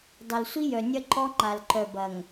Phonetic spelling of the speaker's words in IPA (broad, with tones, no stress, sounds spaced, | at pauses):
dˤ ɐ˨ l sʷ i˦ j œ˨ nʲ ɐ˦ ǃ ɔ˦ ŋ͡ǃ a˨ l ǃ œ˨ b ɐ˨ ŋ